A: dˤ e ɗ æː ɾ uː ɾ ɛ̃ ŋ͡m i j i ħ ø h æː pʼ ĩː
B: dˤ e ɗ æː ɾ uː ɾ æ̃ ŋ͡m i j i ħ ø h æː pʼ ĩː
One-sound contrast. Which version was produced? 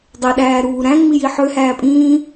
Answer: B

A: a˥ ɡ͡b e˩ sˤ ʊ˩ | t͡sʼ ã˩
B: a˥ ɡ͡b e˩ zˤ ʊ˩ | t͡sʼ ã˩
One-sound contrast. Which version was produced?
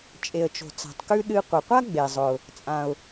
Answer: B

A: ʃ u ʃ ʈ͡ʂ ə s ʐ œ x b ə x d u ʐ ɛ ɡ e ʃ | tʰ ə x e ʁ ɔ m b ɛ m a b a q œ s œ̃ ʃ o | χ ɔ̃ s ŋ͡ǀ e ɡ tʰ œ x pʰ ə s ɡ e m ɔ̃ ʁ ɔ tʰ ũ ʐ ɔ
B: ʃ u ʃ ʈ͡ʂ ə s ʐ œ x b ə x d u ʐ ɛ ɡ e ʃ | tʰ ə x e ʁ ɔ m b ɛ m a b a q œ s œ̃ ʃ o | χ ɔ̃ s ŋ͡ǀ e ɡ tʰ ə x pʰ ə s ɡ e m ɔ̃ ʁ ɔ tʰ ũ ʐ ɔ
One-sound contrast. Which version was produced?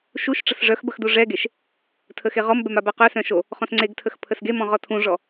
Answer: B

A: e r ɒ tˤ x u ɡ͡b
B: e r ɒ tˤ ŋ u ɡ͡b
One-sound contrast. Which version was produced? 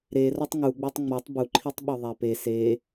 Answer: B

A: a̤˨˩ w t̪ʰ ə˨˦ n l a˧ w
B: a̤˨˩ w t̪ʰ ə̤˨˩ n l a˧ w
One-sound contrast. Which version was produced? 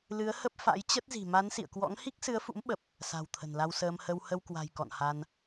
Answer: B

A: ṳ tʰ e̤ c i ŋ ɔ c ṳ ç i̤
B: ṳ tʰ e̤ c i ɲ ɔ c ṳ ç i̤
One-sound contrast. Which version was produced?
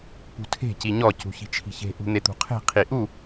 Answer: B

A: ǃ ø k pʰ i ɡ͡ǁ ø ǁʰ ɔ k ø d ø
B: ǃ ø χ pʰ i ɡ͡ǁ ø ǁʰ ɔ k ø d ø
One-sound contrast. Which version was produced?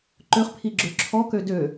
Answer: B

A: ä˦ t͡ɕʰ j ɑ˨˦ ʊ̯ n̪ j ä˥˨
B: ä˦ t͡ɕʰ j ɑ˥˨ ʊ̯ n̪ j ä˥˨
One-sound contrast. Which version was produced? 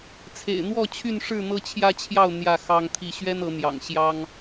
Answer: B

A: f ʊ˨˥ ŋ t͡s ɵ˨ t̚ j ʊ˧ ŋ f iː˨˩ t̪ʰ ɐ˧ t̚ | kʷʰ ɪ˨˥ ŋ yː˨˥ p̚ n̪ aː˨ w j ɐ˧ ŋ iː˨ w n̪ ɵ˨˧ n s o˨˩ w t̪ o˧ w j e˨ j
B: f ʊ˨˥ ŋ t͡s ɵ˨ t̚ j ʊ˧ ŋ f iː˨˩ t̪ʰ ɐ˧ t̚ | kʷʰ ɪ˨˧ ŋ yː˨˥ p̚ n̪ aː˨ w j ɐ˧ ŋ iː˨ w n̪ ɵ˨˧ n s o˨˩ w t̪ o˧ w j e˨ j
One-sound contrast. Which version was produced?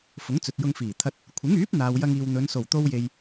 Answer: A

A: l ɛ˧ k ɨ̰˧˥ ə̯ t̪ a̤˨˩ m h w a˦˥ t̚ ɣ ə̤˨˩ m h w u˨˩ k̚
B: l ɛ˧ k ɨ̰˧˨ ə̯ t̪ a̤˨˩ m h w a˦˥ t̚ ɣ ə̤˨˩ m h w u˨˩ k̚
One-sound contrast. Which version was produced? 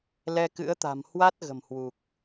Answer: A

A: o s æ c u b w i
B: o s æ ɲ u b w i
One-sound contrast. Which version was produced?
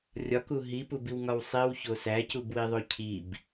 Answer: A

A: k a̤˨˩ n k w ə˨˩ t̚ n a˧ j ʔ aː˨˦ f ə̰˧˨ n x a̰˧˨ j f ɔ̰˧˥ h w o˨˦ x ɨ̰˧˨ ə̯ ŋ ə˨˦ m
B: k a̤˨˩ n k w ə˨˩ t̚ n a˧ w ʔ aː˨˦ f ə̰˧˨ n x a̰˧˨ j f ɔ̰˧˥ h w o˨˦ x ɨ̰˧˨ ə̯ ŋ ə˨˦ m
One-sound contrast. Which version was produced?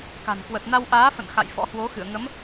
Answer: B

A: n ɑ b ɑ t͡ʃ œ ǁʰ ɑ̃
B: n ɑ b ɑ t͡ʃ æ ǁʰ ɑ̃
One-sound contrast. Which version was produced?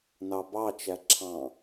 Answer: B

